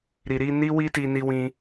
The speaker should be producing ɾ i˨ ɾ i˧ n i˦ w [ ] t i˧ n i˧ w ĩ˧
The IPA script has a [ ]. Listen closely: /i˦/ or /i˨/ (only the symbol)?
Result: i˦